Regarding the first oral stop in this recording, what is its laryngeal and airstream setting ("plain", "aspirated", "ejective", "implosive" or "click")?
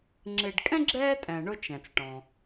click